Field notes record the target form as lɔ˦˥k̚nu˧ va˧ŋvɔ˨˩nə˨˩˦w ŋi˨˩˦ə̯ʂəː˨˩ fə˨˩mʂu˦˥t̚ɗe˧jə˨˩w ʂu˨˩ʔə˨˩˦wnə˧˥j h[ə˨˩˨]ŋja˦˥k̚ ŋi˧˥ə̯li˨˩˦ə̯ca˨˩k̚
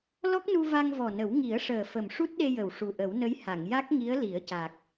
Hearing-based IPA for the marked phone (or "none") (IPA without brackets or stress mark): a˨˩˨